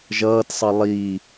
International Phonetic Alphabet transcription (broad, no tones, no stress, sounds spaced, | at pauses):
ʒ ʌː t sˤ ʌ lˠ i